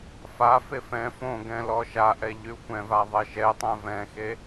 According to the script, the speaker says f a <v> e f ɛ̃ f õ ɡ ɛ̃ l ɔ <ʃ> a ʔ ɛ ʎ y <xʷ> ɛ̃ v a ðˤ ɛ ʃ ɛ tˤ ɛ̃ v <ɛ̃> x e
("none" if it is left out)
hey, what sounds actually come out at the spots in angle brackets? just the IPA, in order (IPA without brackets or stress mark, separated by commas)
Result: f, ʃ, xʷ, ɛ̃